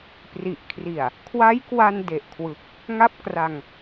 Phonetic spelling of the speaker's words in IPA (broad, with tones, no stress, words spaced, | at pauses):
pri˨˩ʔkʰri˨˩a̯ | kʰwa˦˥jkwa˧n de˨˩ʔkʰwɯ˨˩k̚ | ŋa˥˩p̚kra˧ŋ